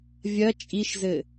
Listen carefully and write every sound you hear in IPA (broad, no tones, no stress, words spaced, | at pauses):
vʲɐ t͡ʃʼiʃzɘ